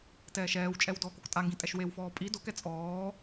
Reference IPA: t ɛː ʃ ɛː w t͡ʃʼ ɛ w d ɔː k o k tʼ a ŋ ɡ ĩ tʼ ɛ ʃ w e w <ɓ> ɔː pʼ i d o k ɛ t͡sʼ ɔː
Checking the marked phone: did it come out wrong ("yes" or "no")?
yes